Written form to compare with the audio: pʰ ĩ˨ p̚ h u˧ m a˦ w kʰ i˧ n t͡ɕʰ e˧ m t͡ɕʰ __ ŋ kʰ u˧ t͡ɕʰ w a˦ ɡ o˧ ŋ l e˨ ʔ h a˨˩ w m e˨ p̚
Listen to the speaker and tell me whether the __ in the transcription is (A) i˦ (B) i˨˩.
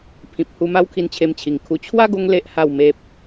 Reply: B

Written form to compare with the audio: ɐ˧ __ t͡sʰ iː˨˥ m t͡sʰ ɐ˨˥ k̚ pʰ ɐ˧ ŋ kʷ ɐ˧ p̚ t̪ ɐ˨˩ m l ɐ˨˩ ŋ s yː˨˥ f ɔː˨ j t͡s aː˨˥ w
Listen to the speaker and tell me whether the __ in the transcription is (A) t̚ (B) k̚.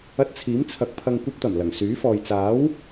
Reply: A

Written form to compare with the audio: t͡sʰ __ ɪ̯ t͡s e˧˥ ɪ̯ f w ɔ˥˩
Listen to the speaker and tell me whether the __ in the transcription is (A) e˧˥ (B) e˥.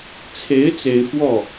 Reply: A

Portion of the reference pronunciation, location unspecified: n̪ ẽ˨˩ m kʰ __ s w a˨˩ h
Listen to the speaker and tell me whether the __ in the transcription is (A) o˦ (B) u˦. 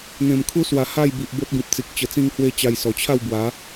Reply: B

